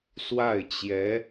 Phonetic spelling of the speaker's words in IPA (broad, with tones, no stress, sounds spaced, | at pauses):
s w a˥˩ ɪ̯ t͡ɕ j ɛ˧˥